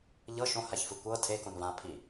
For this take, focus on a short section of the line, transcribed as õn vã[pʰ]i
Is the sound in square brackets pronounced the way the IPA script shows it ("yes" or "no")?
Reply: yes